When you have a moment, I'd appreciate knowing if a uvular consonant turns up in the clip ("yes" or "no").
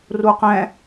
yes